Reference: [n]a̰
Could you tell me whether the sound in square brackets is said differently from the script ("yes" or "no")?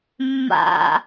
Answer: yes